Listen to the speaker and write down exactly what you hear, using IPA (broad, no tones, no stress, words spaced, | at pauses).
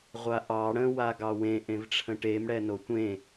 ʁʷaʔɑ ɽə̃ waɡɑwẽ ʔẽvʈ͡ʂʰə̃ʈem ɽɛnotʷẽ